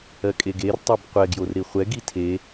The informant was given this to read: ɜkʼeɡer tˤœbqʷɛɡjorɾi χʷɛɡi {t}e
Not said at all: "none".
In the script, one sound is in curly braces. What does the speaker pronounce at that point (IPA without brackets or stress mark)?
tʰ